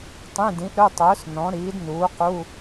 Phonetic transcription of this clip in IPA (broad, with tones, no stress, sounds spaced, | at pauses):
tˤ ĩ˧˥˧ d ĩ˨˥ ʔ ɾ ɵ˧˥˧ tˤ ɵː˨˥ s n ɔ̃˨˥ ɾ iː˨˥ d n uː˨˥ q u˧˥˧